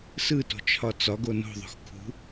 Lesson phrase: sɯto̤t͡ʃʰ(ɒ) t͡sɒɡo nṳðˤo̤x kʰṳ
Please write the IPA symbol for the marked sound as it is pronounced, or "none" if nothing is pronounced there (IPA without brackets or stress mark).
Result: ɒ